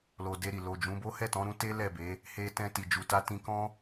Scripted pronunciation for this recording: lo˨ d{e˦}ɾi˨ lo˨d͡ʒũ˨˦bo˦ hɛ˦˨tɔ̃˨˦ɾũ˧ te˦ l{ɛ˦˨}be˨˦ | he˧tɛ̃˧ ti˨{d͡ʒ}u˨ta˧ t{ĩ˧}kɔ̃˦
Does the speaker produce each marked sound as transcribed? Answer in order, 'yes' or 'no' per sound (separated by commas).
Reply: no, yes, yes, yes